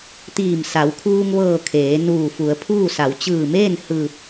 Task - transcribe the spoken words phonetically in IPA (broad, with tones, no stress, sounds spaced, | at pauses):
t̪ iː˧˩ m s a˩˧ w kʰ uː˧ ŋ ʋ ɤː˧˩ kʰ eː˩˧ n uː˧˩ f u˩˧ ə̯ pʰ uː˥˨ s a˩˧ w t͡ɕ ɯː˧˩ m eː˥˨ n h ɯː˧˩ p̚